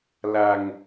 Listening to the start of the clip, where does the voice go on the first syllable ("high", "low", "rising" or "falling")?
low